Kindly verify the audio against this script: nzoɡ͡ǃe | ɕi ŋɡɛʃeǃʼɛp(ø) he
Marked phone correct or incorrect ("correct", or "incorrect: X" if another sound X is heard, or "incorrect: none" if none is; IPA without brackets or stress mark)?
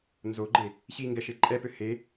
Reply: correct